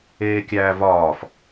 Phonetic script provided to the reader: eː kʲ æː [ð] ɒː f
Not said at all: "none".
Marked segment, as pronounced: v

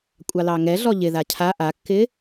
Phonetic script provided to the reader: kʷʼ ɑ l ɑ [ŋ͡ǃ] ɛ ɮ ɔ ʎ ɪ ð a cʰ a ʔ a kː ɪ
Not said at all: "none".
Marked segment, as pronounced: ŋ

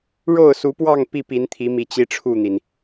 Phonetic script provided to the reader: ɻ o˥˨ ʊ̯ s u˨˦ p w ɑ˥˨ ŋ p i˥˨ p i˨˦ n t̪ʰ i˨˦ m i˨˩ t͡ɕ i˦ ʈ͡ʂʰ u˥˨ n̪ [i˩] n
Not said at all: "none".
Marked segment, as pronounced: i˩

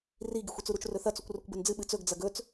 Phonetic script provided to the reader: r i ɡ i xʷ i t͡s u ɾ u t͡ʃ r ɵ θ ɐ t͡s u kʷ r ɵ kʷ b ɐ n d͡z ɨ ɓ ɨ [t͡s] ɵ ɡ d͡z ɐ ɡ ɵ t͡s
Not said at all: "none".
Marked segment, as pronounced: t͡s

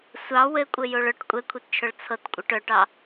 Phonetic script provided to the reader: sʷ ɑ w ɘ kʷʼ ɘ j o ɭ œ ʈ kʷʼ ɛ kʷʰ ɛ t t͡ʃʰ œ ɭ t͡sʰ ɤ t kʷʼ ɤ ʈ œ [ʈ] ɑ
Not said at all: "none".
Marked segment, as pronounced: ʈ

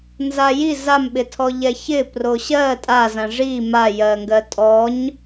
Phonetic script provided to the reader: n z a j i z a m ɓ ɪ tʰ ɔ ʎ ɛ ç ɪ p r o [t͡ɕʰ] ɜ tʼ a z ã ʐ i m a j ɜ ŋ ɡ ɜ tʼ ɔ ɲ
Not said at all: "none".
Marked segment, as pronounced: ɕ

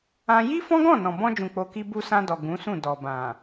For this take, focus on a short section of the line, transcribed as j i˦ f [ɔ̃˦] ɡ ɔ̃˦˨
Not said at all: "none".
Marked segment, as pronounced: ɔ̃˦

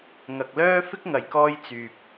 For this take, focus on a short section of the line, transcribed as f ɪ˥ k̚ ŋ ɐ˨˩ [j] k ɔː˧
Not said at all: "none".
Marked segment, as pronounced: j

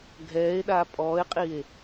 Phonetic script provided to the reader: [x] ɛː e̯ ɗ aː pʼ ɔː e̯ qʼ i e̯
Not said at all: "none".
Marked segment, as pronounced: ɡʱ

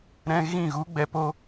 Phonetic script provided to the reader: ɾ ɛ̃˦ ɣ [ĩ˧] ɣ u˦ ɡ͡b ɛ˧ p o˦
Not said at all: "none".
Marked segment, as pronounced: ĩ˦˨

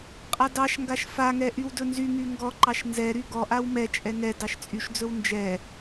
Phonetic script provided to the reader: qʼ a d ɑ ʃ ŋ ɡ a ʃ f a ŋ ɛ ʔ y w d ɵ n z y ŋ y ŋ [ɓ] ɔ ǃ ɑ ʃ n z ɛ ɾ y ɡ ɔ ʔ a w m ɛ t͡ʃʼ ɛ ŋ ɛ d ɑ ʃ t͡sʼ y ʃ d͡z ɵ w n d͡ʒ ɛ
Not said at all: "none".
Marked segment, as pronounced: ɡ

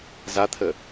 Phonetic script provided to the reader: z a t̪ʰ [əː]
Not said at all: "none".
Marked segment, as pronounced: ə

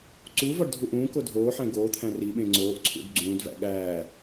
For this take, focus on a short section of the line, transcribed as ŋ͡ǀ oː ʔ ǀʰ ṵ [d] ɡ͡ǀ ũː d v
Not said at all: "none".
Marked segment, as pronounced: d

